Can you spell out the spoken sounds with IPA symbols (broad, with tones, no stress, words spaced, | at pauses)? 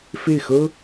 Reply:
fe˥˩ɪ̯xɤ˥